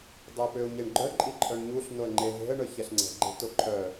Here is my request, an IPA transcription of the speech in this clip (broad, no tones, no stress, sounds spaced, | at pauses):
dˤ ə ɪ̯ p ø ʊ̯ ɲ e ɳ ɡ͡ǃ œ ǃʼ i ǃʼ œ ɳ ɲ u ɬ n o ə̯ ŋ͡ǃ e ɦ e̤ ə̯ ɳ œ ç ɛ ɬ ŋ͡ǀ ɛ̤ ɡ͡ǃ e̤ t o ǃʰ œ